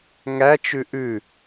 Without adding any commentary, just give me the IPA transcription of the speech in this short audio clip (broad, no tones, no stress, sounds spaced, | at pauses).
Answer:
ŋ æ t͡ʃ ʉ ʔ ʉ